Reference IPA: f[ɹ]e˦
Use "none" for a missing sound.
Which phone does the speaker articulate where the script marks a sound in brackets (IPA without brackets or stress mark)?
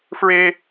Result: ɹ